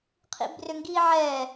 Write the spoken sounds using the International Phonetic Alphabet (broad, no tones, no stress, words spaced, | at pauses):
qʰḭbrʏŋɡiʕɛ